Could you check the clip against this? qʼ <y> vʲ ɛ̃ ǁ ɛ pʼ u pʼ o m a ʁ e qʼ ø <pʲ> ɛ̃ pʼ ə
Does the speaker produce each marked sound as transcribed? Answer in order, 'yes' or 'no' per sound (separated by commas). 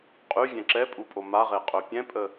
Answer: yes, yes